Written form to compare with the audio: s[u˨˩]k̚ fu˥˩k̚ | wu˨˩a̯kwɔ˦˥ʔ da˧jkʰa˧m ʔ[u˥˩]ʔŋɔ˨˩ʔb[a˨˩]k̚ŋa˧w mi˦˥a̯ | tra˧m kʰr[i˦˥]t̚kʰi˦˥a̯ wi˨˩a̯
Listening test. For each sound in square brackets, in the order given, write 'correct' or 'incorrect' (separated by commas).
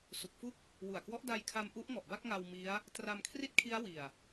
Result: correct, incorrect, incorrect, incorrect